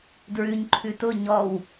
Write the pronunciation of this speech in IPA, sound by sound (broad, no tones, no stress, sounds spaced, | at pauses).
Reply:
d ɹ ʉ ɲ ǃʰ ʉ t ʊ ɲ ɔ w